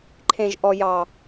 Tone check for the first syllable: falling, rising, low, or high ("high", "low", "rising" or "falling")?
low